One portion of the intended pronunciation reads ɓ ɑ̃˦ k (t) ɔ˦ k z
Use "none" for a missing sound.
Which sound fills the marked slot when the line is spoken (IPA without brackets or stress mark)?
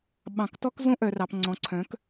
t